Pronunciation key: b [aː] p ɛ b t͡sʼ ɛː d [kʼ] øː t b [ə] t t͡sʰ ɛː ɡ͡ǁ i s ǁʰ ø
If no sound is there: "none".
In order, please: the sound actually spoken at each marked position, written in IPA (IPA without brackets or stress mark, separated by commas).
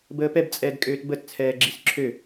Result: əː, kʼ, ə